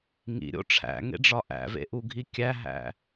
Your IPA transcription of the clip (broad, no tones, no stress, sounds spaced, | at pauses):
ŋ ḭ ɾʲ o̰ ʈ͡ʂʰ æ̰ ŋ ḛ ɖ͡ʐ ɒ ʔ æ̰ v ḛ ʔ u ɡʱ i kʲ æ ɦ æ̰